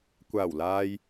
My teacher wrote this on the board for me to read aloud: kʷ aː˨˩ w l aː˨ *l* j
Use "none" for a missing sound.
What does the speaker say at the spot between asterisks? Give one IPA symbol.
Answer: none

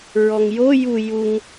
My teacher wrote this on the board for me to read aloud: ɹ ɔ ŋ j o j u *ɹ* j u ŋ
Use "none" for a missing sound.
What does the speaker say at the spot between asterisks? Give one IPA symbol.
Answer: none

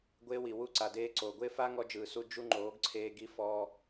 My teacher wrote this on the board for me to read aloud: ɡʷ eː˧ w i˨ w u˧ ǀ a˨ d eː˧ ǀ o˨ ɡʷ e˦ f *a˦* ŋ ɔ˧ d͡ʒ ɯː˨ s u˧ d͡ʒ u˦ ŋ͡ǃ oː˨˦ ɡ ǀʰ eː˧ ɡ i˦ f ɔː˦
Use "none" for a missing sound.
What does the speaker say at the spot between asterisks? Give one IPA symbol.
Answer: a˦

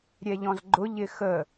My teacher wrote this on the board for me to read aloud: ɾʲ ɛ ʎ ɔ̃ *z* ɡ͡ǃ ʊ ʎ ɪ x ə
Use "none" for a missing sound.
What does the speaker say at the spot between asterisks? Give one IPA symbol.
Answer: z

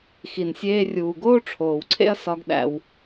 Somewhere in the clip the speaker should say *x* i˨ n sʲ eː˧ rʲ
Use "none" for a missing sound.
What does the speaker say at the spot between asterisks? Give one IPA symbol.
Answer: x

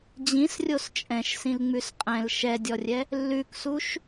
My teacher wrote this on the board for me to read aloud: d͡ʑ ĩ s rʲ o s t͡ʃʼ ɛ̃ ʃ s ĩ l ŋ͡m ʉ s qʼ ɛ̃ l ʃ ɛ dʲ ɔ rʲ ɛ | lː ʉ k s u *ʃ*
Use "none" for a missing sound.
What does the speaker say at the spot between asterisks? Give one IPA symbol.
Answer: ʃ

